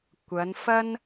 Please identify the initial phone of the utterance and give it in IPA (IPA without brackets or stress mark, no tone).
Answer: kʷ